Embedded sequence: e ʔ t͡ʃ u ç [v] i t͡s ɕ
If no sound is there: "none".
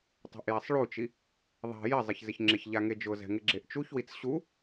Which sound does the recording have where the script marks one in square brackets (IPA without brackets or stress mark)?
w